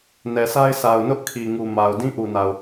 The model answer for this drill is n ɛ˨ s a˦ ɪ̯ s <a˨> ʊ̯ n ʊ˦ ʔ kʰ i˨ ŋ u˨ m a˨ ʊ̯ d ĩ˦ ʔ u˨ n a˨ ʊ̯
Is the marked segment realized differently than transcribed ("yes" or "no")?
no